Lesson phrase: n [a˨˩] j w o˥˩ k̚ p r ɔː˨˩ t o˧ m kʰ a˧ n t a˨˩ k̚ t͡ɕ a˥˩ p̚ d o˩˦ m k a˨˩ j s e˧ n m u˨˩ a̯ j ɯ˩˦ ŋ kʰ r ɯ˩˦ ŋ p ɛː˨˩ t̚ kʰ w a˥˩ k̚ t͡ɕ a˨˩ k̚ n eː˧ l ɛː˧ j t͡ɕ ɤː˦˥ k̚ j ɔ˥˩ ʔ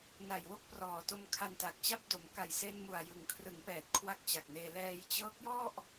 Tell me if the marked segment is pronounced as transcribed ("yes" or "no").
yes